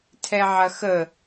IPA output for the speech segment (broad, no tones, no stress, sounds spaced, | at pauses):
tʰ ɛ ʕ ɐ x ə